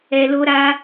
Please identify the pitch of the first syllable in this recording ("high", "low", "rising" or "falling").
low